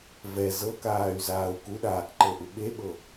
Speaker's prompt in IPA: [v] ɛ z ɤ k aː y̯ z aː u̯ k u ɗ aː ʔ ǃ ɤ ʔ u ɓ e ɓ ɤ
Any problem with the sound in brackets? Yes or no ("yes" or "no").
no